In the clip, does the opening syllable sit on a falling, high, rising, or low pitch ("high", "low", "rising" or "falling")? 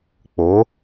rising